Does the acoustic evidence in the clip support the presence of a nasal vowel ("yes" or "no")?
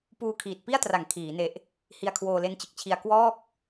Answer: no